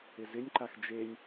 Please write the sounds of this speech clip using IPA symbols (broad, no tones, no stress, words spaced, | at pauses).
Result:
ɪzɪnʲǃax d͡ʒenʲ